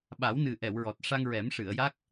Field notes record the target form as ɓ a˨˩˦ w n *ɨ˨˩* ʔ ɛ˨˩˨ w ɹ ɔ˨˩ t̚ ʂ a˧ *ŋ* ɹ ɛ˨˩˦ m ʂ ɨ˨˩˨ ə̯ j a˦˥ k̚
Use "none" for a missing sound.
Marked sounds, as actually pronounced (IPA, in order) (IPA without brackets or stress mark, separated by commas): ɨ˨˩, ŋ